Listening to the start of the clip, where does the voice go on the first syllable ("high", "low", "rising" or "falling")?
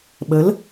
rising